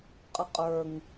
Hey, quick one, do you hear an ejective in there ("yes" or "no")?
yes